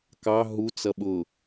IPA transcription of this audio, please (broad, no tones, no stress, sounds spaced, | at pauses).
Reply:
k ɑ ɦ u t͡s ʌ ɓ ʊ